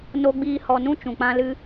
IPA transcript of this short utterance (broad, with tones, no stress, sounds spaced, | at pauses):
n o˧ ɡ͡b iː˧ h ɔ˨ n ũ˧ t͡ʃ ũ˨ k͡p ã˧ l ɨ˧